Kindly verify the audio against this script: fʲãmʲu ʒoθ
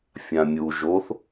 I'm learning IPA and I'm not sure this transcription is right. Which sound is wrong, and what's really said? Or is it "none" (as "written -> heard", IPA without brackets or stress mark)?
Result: none